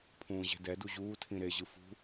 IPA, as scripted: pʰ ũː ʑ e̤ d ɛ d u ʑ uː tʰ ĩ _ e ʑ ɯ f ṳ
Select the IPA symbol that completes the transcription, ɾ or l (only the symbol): ɾ